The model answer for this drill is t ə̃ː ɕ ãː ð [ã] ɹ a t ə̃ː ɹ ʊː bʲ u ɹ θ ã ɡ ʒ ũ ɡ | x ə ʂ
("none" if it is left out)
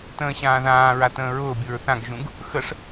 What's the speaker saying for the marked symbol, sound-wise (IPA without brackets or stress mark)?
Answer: ãː